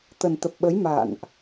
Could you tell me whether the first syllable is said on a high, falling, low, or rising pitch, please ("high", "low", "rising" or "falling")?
low